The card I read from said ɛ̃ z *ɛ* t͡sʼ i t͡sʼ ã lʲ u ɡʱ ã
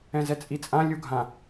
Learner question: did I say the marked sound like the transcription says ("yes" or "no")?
yes